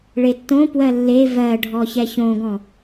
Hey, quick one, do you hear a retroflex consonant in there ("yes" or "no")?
yes